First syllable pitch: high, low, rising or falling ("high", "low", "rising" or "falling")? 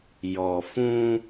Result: low